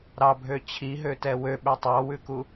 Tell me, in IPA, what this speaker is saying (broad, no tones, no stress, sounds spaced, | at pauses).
ɾ ɑ bʱ ø t͡ɕʰ i ɦ ø t ɛ w ø ɓ ø tˤ ɑ w ʉ k u